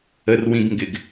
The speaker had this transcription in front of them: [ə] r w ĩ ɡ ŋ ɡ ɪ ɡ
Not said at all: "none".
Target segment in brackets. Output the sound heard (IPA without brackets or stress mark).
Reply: ə